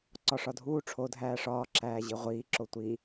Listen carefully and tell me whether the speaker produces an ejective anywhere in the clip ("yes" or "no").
no